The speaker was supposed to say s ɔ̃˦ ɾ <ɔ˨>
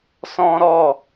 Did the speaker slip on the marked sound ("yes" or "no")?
yes